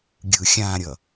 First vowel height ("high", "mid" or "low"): high